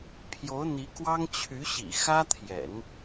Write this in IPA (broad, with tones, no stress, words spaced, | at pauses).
pʰjo˧˥ʊ̯n̪i˧˥kwɑ˥ŋ t͡ɕʰy˧˥ɕḭ˨˩ xä˥t̪ʰjɛ̰˨˩˦n